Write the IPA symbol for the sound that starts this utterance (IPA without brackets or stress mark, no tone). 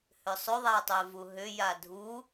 h